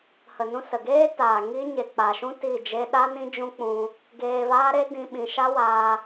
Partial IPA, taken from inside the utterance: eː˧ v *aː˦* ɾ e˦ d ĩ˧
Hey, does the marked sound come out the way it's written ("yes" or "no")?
yes